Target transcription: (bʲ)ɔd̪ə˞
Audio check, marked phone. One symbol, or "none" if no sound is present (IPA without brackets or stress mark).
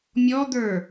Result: mʲ